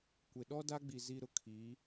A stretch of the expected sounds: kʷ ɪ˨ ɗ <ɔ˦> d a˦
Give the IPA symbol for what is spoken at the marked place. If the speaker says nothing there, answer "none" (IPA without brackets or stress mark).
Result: ɔ˦